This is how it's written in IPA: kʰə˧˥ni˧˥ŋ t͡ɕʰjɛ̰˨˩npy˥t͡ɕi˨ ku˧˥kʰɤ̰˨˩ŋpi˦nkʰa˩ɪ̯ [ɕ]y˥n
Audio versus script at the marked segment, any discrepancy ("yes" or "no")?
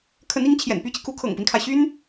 no